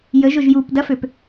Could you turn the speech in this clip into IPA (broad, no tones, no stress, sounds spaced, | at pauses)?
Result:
j ə ʒ ʊ ʒ j u p d ɐ f ø p